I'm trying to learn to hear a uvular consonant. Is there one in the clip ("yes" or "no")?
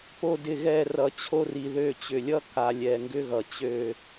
no